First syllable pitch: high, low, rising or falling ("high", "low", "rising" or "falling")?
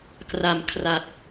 low